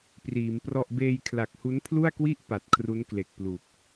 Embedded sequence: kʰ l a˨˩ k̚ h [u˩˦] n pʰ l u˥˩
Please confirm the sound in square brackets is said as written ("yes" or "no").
no